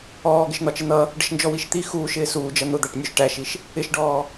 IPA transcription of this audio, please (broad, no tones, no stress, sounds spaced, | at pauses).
ɔː ɡ ɪ ʃ n̪ ɒ t͡ʃ ɪ n̪ ʌ | ɖ ə ʃ n d͡ʒ ɔ w i ʃ t̪ i x uː ʃ ɪː s uː d͡ʒ ʌ n̪ ʊ d̪ æ ʈ nʲ u ʃ ʈ æ ʃ i ʃ | ɪ ʃ ɖ ɔː